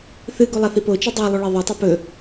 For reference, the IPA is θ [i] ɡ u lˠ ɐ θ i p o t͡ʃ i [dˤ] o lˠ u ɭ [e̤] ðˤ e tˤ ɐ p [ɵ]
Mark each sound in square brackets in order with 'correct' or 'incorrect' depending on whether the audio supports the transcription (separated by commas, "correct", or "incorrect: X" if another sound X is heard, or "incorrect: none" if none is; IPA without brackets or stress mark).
incorrect: ɨ, correct, incorrect: e, correct